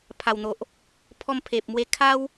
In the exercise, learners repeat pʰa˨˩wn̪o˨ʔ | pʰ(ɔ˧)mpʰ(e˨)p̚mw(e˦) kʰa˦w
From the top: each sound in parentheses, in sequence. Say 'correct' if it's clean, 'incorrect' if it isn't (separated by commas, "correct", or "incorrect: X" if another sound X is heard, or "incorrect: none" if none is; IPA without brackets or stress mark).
correct, correct, incorrect: e˧